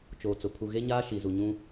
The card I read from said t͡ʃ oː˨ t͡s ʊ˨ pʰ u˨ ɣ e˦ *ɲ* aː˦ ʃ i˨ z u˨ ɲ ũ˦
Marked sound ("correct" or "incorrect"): correct